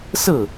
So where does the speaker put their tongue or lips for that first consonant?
tongue tip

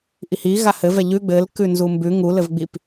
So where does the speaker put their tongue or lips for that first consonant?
throat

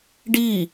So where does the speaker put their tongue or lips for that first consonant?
retroflex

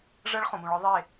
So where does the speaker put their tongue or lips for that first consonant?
retroflex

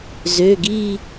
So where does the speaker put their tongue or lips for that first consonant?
tongue tip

